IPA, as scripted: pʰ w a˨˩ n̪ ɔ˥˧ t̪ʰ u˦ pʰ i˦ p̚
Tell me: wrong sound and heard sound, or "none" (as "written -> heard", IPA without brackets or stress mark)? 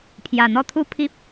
w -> j